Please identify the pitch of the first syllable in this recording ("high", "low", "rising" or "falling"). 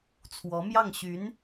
rising